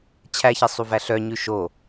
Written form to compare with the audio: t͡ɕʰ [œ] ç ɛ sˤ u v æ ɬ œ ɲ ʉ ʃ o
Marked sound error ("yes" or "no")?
yes